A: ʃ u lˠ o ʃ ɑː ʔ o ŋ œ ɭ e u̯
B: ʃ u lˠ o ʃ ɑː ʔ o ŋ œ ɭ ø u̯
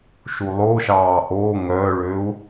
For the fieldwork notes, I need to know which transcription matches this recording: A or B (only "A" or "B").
B